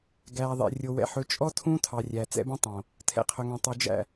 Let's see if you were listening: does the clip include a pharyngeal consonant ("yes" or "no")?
yes